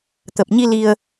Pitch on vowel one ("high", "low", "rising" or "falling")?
low